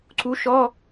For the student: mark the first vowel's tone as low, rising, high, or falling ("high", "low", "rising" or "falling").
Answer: rising